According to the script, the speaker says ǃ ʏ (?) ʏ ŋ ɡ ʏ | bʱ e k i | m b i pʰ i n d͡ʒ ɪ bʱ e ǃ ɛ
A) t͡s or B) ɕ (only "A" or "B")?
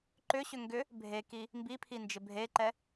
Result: B